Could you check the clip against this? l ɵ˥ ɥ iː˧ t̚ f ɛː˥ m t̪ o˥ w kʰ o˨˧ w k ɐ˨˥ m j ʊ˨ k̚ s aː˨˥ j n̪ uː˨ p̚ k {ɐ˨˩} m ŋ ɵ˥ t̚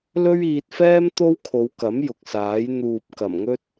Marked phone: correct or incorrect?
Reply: correct